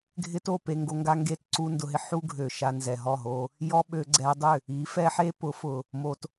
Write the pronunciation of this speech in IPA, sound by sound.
ɡʱɪ˦to˦˨ pe˧ŋɡo˧ŋɡa˦ ŋɡe˦˨tǀu˦ndʊ˧ɦɪ˧ ħu˦ɡʱø˨ ʃa˧nzɛ˨ɦɔ˦˨ɦo˧ | jɔ˦ɓø˧ ɡ͡ǀɛ˧dˤʏ˦˨ | i˨˦fɛ˦ħe˦ pʊ˨˦fʊ˨ | mo˧t

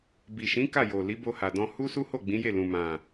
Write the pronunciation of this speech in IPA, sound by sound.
bi˨ʃĩ˨˦ ka˦˨jo˨ li˨˦bo˧ha˨dɔ̃˧ hu˦su˦ho˦˨ ɡ͡bĩ˨˦je˦˨lũ˨ mã˨

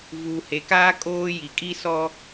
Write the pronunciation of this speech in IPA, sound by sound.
vuː˨he˨kaː˦ kʼoː˦ ji˨kʼi˦ sɔ˦

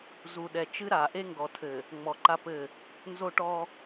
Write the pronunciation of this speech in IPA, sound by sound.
zu˨ɗɛ˨t͡ʃɨ˦ ɾa˨ ʔe˦ŋɡɔ˨tʰɘ˨ | ŋ͡mɔ˨ǃa˦pɘ˦˨ | nzo˦ʈɔ˦

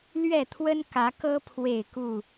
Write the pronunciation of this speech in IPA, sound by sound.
lɥɛ˥˨t̪ʰwə˦nkä˨˦kɤ˦ pʰwe˥˨ɪ̯ku˥˨

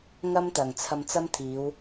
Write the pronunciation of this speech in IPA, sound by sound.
ŋɐ˥mt̪ɐ˨˩ŋ t͡sʰɐ˧mt͡sɐ˥mt̪ʰiː˨˧w

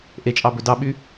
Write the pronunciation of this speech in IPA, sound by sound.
ʔet͡ʃʼɑ bɵdɑɓy

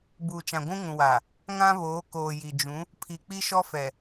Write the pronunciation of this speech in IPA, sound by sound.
buː˨t͡ʃã˨ ɡʷũ˦ŋũ˨wa˨ | ŋã˦βoː˨˦ koː˨ji˨d͡ʒũ˨˦ | pʰi˨k͡pi˦ʃɔ˦fɛ˨

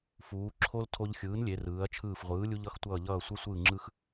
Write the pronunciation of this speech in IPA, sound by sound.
fuː˩˧ ǁʰo˧l tʰo˧ʎxʲɯː˩˥nlʲe˩˧rɯː˩˧ɐ̯ t͡ʃʰɯː˧˩fʁʷɯː˩˥ lʲu˧ʎʌ˩˥xtʷʌː˧˩ʎʌː˧˩ sʷɛ˧sʷɯː˧˩ŋ͡ǁɯ˧x

